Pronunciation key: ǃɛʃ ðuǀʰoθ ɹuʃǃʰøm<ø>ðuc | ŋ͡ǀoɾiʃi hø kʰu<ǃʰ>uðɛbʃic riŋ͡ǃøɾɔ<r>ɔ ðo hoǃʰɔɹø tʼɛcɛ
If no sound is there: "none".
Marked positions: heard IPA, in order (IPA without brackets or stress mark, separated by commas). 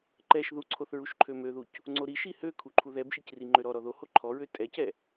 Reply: ø, ǃʰ, ɾ